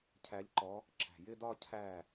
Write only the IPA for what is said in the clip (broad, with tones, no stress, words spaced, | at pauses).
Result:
cʰæ˨˥ʎǃɔ˨˥ | ǁæ̤˧˩ jɪ˥˧dɒ˥˧ cʰæ˥˩